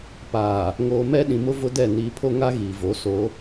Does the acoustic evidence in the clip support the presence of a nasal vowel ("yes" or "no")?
yes